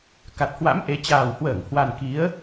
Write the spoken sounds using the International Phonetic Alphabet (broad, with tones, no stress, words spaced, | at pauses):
ka˨˩t̚ hwa̰˧˥m ʔe˨˦ t͡ɕaː˨˩whwəː˧˩ŋ hwa˨˩n ki˨˦ə̯